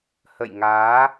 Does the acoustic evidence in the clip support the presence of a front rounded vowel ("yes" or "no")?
no